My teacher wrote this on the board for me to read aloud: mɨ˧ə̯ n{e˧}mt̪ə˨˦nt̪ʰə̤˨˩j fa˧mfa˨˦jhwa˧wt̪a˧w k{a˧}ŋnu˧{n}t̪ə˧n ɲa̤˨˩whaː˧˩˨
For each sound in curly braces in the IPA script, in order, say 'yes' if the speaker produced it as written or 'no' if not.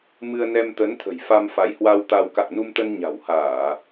no, no, no

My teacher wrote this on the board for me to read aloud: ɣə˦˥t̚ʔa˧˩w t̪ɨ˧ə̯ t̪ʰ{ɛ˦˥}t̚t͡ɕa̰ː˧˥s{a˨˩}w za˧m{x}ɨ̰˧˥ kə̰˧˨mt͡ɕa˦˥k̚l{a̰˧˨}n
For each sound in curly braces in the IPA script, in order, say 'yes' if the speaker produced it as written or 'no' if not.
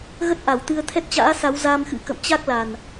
yes, no, yes, no

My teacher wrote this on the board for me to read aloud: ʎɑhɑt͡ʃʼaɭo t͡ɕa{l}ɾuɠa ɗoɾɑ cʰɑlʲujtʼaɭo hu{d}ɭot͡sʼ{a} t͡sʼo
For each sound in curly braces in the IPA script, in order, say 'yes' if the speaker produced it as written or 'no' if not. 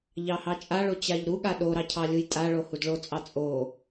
no, yes, no

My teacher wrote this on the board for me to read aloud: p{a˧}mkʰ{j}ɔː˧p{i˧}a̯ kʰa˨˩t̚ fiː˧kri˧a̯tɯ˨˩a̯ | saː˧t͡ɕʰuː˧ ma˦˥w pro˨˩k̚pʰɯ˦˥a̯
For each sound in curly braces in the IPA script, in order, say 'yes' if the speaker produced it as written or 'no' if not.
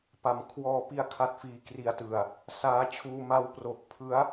no, no, yes

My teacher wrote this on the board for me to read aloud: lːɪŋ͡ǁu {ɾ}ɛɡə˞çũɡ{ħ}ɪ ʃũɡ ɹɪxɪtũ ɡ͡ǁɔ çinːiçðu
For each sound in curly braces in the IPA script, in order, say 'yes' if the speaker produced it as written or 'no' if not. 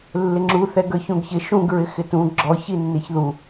no, no

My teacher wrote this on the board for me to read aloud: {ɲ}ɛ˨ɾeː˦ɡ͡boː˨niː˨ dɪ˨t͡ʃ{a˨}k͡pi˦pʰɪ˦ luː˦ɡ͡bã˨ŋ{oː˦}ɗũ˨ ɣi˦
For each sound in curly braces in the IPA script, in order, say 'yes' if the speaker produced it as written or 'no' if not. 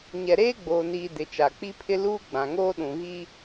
yes, yes, yes

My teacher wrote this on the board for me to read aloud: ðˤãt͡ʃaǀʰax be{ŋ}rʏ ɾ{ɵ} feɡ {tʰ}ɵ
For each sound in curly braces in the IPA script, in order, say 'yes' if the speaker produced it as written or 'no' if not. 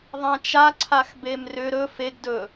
no, yes, no

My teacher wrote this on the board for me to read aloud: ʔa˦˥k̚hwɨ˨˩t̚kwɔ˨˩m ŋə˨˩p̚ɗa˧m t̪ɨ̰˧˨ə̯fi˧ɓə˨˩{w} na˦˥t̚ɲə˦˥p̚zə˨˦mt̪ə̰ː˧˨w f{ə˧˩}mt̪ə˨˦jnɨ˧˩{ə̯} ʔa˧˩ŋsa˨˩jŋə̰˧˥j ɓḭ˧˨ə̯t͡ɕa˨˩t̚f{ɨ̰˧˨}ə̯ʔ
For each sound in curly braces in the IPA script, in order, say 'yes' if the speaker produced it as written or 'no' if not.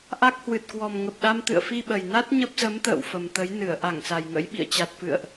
no, no, yes, yes

